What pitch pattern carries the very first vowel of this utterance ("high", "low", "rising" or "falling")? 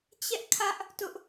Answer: high